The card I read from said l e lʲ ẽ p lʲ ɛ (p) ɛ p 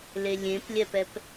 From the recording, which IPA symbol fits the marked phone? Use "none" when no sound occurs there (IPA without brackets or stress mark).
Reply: p